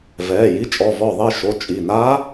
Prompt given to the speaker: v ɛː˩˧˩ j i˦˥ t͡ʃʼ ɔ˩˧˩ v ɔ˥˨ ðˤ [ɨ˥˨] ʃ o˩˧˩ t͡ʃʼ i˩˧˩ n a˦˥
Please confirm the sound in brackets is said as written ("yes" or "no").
no